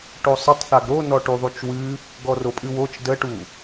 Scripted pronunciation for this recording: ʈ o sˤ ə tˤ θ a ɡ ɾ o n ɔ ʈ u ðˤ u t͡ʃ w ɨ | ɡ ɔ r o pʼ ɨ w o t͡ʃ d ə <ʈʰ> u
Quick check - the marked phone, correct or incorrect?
incorrect: ʈ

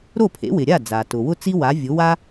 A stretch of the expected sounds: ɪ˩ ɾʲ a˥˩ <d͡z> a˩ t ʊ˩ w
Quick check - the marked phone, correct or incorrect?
correct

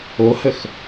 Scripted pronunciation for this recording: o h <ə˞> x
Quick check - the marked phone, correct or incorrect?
incorrect: ə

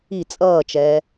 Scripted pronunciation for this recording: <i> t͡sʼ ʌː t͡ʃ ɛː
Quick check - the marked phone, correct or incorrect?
correct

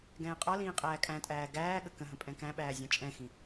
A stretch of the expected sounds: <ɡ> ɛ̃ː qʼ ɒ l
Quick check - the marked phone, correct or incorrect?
correct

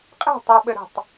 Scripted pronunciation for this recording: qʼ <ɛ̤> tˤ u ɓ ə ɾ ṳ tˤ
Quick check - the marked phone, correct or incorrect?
correct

